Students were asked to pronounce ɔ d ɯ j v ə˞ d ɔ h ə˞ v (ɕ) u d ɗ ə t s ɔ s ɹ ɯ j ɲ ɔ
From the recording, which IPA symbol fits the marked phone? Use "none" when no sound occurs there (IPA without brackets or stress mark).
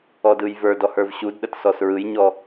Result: ɕ